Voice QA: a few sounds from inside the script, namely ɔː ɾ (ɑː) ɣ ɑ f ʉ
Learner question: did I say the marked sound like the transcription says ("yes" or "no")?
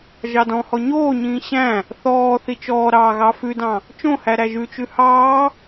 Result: yes